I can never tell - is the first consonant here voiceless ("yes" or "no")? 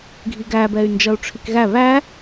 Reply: no